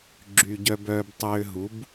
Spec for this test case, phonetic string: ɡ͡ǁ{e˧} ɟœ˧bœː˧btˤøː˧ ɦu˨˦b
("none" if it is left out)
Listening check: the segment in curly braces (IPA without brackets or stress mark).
y˧